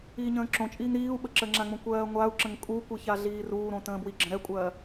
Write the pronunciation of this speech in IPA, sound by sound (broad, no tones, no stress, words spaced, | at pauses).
iːɲə̃ːǁõt͡ʃʼiːŋ ɾiːu̯ ɓəǁəːŋ͡ǁãŋ͡mõ kʷɜːŋʷau̯ǁə̃ŋ kʼukʷi çaɮiːruːɾõ tə̃ːbwiɡ͡ǁə̃ ɾɛkʷʼɜː